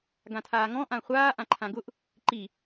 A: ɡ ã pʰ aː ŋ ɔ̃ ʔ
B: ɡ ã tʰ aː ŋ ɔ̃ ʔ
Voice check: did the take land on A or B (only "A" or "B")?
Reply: B